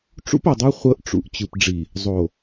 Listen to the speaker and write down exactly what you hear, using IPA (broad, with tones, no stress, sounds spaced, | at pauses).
ʈ͡ʂ ṵ˦ p o˨ dˤ o˦ χʷ ɤ˦ ʔ ʈ͡ʂ ṵ˨ ʔ t͡ɕ ɯ˨ p ɖ͡ʐ i˨ | zˤ o˨